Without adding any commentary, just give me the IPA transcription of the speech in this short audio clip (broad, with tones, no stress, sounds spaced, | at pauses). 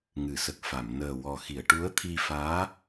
ŋ ɨ˨˩˨ s ə˨˩ k̚ f a˨˩˨ m n əː˨˩ w ɔ˨˩ x i˨˩˨ ə̯ ʈ u˧˥ ə̯ t̪ʰ i˧ f aː˧˥